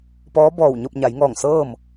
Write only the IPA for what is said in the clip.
p ɔː˧˥ b ɔː˧˩ w ɲ o˥˨ p̚ ɲ a˩˧ j ŋ ɔː˧˩ ŋ s ɤː˥˨ m

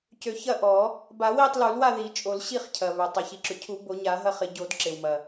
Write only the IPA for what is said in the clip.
c ø˨˩˦ ç ɐ˥˨ ʔ ɔ˨˩˦ | b a˨˩˦ w i˥˨ tˤ l u˨˩˦ l w a˥˨ ð i˨˩˦ t͡ʃʼ o˨˩˦ l ɕ i˥˨ χ cʰ ɐ˩ β ʏ˩ tˤ ɐ˩ ç i˩ ǁ ʏ˩ cʰ u˨˩˦ b o˨˩˦ ɲ a˨˩˦ ɦ ɐ˥˨ χ ɪ˨˩˦ ɟ o˨˩˦ d ǁ ɪ˩ w m ɐ˩

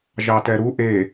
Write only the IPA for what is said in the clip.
ʒ ɑ t ɛ ɾ u ʔ e

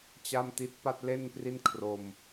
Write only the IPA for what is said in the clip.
t͡ɕ a˥˩ m t i˦˥ t̚ p a˥˩ t̚ l e˥˩ n p r i˥˩ n kʰ r o˧ m

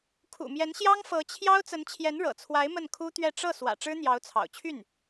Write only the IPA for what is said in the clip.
kʰ ṵ˨˩ m j ɛ˧˥ n ɕ j ɑ˥ ŋ f ɤ˧˥ t͡ɕʰ j ɑ˥ ʊ̯ t͡s ə˧˥ n t͡ɕʰ j ɛ˧˥ n ɻ ɤ̰˨˩ t͡sʰ w a˧˥ ɪ̯ m ə˥˩ n kʰ u˥ t̪ ɥ ɛ˥˧ ʈ͡ʂ ɤ˥˩ s w ä̰˨˩ ʈ͡ʂ ɻ̩˥ n̪ j ɑ˧˥ ʊ̯ t͡sʰ ɑ̰˨˩ ʊ̯ t͡ɕʰ y˥˩ n

